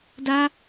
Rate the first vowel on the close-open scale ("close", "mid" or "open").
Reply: open